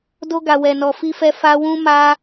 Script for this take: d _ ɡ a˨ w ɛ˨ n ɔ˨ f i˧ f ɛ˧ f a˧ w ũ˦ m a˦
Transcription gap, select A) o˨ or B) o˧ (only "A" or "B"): B